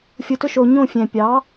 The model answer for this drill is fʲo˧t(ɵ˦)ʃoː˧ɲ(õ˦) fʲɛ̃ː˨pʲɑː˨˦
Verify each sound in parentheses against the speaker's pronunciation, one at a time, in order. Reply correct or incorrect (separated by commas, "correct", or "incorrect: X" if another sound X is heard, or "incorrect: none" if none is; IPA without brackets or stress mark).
correct, incorrect: õ˦˨